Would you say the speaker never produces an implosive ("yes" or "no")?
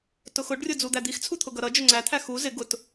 yes